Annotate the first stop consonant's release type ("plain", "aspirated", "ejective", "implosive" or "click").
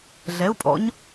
ejective